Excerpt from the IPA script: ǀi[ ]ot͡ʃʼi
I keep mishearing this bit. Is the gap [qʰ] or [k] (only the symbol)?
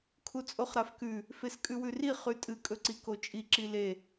k